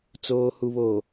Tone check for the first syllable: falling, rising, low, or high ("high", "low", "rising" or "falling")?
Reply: low